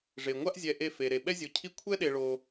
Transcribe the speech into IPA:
ʐ e˧ ŋʷ a˦ ʔ zʲ ɛ˧ ʔ e˦ f e˧ ɾ e˨ ɓ ɛ˦ zʲ o˧ cʰ i˦ kʷʰ ɛ˦ ɗ e˧ ɭ o˧

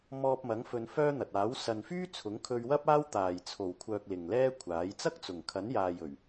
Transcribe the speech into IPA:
m ɔː˧ p̚ m ɐ˨˥ ŋ f ɵ˨˧ n f œː˥ n̪ ɐ˨ t̚ aː˨˥ w s ɐ˨ n f yː˥ t͡sʰ ʊ˨˥ ŋ kʰ ɵ˧ ɥ w ɐ˥ p̚ aː˥ w t̪ aː˨˩ j t͡sʰ o˨˩ w kʷʰ œː˨ k̚ l ɪ˨ ŋ l ɛː˥ kʷʰ aː˨˥ j t͡s ɐ˥ k̚ t͡s ʊ˨˩ ŋ kʰ ɐ˨˥ n j aː˨ j ɵ˨˩ ɥ

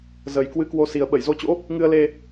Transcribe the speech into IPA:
z ə˨˩ j k w ɨ˧ k w o˧ s i˨˩ ə̯ ɓ ə˧˩ j z o˨˦ t͡ɕ o̰˧˥ | ŋ ɨ˧ ə̯ l e˧

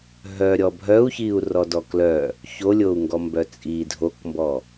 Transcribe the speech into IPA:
ɦ œ ɾʲ ɔ bʱ œ u̯ ç i u̯ r ɔ d ɔ k l œ | ç o lʲ o u̯ ŋ ɡ ɔ m b œ t͡sʼ i dʱ o k m b ɔ

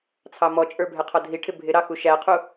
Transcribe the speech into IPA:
t͡sʰ ɑ m ɔ t͡ʃʼ ə˞ bʱ ɛ qʰ ɔ dʱ i ʈʰ ɪ bʱ ɪ ɾ ɑ x u ʃ æ qʰ u

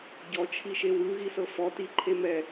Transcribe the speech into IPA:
ɟ ɔ t͡ʃʰ i ʃ e w ɯ ɣ i s ɤ f ɔ t i ǃʰ e m ɛ

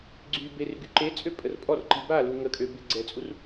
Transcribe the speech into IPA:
ɡ͡ǀ y b e r ɡ y ǃ e t͡sʼ ø pʼ ə r pʼ ɔ r ǃ i b a l u ŋ ə kʼ ø b e ɡ͡ǀ ɛ t͡sʼ u r

